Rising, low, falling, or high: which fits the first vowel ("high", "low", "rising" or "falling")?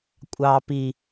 low